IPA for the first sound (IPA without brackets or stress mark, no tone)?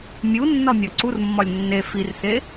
mʲ